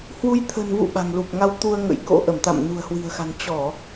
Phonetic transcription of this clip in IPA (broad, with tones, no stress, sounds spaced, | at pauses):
h w u˧ j t̪ʰ ə̤˨˩ n v ṵ˧˨ ɓ a̤˨˩ ŋ l u˨˩ p̚ ŋ a˧ w t̪ u˧ ə̯ ŋ ə̰˧˥ j k o̰˧˥ ʔ ə˧˩ m t̪ a̰˧˨ m n ṳ˨˩ ə̯ h w i̤˨˩ ə̯ x a̤˨˩ n t͡ɕ ɔ˧˩˨